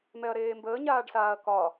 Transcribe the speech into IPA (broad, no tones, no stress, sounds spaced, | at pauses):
m ɛ ɐ̯ ɾ eː m b əː ɲ aː ɖ s aː ɐ̯ k ɒ